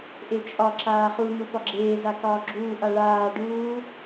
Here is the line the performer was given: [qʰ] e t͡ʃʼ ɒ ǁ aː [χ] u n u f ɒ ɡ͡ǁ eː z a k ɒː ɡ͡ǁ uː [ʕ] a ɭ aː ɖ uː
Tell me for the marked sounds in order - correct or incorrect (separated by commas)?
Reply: incorrect, correct, incorrect